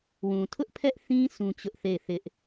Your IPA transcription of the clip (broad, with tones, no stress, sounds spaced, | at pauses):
w ũ˨ tʰ ʊ˦ ʔ pʰ ɛ˦ ʔ θ ĩ˦ s ũ˦ t͡ɕ ʊ˦ ʔ θ e˦˨ ɪ̯ θ ɪ˦ ʔ